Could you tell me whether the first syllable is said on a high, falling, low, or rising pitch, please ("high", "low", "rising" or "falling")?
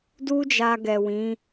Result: high